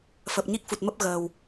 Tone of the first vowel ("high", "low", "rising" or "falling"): low